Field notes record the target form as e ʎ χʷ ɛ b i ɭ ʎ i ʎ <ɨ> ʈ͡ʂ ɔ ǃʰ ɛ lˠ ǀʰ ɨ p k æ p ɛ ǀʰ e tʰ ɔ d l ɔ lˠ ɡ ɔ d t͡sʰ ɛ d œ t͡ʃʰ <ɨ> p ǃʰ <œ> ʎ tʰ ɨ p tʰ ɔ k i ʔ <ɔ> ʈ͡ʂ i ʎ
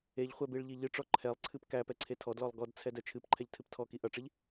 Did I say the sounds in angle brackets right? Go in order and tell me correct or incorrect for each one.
correct, correct, incorrect: ɛ, incorrect: ʌ

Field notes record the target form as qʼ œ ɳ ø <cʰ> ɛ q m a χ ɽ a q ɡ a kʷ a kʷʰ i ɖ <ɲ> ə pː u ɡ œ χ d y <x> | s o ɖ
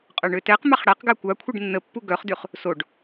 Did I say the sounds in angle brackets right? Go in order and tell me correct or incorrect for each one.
incorrect: t, incorrect: nː, incorrect: χ

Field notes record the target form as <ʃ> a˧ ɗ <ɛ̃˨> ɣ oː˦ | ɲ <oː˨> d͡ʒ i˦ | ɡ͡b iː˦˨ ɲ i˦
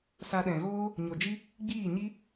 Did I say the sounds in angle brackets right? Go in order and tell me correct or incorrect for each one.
incorrect: s, correct, incorrect: o˨

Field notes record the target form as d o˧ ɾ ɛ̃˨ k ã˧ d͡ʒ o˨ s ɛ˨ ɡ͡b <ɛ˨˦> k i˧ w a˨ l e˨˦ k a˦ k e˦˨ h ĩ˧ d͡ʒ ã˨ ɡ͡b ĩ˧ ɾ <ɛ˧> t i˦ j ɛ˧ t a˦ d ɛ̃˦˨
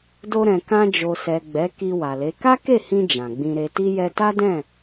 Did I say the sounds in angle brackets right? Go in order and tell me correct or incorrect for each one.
correct, incorrect: e˧

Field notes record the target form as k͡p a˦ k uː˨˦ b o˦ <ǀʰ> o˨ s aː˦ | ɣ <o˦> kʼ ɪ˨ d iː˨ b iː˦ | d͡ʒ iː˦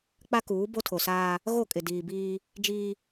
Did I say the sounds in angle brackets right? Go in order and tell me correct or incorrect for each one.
incorrect: tʰ, incorrect: o˦˨

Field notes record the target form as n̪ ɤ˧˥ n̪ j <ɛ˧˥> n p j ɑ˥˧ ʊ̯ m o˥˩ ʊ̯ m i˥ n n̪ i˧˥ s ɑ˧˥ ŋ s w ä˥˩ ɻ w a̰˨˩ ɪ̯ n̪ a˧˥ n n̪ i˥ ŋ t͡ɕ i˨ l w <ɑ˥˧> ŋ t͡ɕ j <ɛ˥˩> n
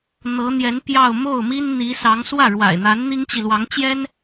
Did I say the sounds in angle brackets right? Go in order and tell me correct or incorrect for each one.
correct, incorrect: ɑ˧˥, incorrect: ɛ˥

